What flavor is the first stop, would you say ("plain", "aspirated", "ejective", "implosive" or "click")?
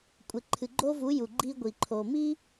ejective